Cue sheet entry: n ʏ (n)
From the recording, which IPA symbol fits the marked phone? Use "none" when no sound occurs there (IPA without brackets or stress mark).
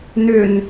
n